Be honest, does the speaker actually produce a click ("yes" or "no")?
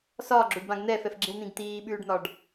yes